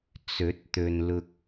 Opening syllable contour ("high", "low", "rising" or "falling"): rising